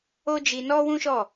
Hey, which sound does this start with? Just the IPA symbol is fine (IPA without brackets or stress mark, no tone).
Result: o